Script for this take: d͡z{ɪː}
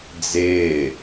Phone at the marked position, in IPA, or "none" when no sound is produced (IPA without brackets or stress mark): ɪː